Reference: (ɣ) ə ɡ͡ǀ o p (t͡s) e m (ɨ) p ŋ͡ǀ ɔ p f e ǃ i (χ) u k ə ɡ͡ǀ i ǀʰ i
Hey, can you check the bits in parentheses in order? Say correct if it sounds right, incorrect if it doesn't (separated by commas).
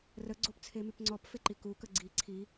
incorrect, incorrect, incorrect, incorrect